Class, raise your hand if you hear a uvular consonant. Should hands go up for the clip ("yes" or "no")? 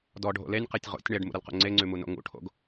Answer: yes